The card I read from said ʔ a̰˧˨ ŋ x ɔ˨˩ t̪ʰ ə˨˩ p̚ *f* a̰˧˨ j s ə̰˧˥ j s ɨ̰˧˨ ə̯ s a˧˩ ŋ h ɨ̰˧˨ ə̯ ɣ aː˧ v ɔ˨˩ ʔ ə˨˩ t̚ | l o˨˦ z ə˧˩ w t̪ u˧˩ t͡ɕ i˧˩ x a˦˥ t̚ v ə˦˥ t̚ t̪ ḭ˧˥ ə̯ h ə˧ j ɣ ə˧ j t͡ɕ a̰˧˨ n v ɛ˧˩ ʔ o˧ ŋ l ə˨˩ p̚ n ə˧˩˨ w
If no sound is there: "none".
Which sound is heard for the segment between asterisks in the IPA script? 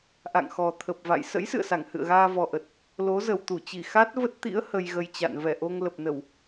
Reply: v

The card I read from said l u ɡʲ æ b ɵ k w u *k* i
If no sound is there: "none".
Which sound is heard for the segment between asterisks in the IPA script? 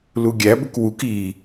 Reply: k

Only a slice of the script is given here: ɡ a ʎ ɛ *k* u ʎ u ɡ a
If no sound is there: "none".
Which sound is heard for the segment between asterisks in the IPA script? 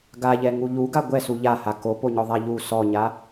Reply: ŋ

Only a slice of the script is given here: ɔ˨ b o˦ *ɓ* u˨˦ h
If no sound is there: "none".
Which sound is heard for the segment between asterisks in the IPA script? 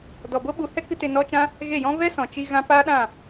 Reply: ɓ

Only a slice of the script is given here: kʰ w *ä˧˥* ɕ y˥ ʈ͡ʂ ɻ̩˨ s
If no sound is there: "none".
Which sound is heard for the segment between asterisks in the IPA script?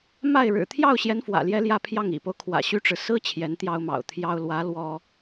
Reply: ä̰˨˩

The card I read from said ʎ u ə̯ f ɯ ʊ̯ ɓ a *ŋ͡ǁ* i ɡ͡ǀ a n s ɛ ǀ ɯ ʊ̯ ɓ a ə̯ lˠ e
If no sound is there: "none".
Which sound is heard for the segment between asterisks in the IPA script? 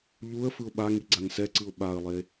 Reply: ŋ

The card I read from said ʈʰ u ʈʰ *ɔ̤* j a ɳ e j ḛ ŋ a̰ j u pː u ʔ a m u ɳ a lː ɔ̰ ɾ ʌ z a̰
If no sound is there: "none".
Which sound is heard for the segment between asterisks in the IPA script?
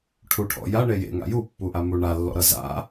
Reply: ɔ̰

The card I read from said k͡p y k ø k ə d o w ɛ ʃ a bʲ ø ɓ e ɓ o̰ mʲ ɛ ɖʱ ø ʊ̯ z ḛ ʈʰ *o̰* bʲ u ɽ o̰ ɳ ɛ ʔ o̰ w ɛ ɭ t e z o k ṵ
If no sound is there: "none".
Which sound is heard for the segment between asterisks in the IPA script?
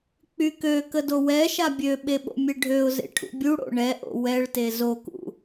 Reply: ṵ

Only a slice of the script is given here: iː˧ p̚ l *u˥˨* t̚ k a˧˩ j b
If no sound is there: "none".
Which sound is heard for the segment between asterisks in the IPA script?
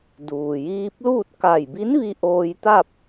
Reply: uː˥˨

